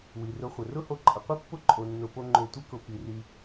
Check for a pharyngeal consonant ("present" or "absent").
absent